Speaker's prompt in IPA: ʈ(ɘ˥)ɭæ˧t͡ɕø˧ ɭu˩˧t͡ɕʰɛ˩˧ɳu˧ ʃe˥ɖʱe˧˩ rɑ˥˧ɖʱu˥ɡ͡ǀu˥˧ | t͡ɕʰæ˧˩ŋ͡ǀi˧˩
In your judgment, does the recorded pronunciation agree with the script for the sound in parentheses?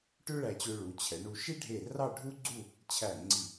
no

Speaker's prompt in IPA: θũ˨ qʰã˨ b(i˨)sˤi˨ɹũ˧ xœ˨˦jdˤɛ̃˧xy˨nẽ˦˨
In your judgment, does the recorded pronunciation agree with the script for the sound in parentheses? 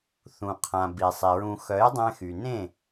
yes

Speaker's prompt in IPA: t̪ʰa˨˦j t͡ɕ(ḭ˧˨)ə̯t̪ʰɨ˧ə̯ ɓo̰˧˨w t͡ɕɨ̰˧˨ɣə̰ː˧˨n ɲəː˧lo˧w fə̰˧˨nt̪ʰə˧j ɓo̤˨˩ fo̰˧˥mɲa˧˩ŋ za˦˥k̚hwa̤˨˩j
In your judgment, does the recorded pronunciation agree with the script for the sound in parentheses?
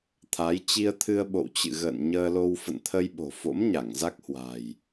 no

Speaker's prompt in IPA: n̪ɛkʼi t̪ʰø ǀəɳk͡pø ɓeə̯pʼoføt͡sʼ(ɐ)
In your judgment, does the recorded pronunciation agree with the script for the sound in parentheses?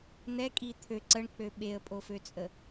no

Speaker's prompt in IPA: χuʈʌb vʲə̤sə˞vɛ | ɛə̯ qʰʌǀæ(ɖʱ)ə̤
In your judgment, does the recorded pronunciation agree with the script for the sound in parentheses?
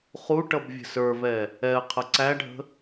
yes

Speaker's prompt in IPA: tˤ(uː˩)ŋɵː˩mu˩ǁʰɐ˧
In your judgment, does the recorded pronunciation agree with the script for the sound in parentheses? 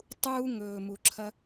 no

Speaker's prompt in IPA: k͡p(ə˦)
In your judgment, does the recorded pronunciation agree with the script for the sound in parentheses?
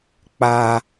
no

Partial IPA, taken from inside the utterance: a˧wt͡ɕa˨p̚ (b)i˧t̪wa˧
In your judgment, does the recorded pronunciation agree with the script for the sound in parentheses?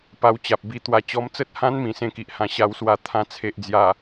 yes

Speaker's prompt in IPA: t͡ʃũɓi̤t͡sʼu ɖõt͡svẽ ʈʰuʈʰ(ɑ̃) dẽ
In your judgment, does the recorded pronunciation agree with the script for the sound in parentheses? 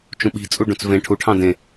yes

